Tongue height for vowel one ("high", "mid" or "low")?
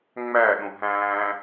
low